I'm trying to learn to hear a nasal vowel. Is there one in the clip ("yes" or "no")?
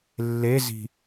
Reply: no